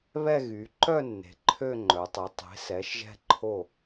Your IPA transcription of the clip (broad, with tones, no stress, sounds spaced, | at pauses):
β ɛ˥˧ ɣ y˩˧ ǃ œ˥˧ nː e̤˩˧ ǃʰ ø˥˧ ŋ͡ǃ œ˩˧ tˤ y˩˧ tˤ e̤˩˧ s ɛ˩˧ ʃ ʒ ɛ̤˧ ǃʰ o˧˩